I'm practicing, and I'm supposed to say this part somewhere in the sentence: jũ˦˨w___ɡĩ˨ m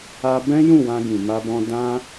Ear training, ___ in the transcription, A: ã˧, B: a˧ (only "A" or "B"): A